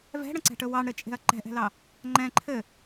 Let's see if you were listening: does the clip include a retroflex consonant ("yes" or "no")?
yes